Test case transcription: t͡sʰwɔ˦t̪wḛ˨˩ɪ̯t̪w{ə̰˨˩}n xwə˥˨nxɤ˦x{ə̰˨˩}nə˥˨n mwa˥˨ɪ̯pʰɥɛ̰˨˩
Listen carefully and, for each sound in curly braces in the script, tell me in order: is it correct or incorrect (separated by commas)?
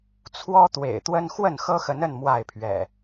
incorrect, incorrect